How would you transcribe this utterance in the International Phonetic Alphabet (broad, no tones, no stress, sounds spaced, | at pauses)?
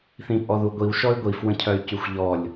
θ ĩ pʼ ɔ ð u ɡʷ i w ʃ ɔ y̯ ɡʷ i f w ə̃ cʰ œ y̯ c y xʷ ʎ ɔ lʲ